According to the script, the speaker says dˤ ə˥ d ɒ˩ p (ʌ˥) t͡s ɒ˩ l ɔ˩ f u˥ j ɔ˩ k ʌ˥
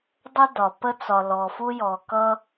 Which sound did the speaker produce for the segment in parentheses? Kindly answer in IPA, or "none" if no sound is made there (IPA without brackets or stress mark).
ə˥